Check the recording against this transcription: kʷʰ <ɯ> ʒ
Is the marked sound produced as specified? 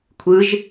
yes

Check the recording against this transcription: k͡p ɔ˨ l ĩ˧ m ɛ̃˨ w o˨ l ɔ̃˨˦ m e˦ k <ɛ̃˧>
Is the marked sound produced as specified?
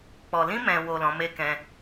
no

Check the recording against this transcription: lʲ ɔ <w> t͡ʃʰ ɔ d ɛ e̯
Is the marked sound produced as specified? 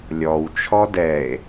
yes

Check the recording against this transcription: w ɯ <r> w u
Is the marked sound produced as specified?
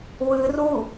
yes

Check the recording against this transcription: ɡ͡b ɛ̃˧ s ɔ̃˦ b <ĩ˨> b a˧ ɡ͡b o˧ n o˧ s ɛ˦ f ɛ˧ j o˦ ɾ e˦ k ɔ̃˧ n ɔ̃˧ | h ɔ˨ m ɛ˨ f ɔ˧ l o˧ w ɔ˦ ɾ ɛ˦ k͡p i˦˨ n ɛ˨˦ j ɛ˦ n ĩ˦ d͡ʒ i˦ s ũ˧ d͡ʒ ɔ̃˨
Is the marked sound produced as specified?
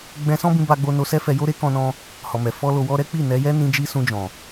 no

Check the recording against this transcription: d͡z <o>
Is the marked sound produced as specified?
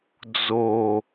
yes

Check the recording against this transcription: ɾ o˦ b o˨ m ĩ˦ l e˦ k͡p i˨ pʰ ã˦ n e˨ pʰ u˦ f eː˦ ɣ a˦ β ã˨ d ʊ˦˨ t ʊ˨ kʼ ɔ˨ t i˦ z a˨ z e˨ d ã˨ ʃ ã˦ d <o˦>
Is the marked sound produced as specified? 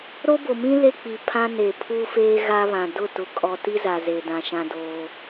no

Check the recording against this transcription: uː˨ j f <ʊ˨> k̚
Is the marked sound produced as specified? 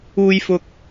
yes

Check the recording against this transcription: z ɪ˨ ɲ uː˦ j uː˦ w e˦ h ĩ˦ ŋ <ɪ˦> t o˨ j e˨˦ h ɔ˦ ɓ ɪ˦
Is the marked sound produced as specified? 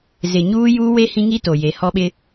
no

